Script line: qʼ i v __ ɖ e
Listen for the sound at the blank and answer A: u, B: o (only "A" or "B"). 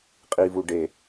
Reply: A